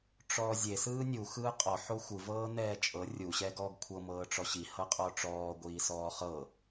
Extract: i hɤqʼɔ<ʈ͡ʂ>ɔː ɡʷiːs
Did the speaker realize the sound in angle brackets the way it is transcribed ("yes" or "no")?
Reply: yes